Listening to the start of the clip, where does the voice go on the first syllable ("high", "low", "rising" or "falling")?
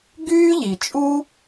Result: high